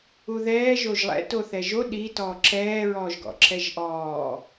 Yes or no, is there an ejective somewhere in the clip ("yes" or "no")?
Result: no